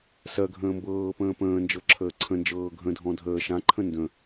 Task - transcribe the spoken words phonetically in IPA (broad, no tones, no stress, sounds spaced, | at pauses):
s ɜ ɡʱ ə̃ː m b ɤː p ə̃ː p ə̃ː n d͡ʒ ɤ ǁʰ əː ǀʰ ə̃ n d͡ʒ ɤː ɡʱ ə̃ dʱ ɔ̃ dʱ əː ʃ ã ǃʰ ə̃ n d ə̃